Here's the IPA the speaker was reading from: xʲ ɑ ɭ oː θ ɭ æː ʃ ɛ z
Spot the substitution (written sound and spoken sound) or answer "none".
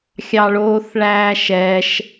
z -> ʃ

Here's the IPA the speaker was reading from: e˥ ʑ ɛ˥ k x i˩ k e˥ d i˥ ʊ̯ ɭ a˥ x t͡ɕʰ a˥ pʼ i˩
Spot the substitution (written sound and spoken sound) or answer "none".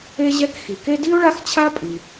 none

